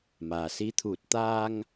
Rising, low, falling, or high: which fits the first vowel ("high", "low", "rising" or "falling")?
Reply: low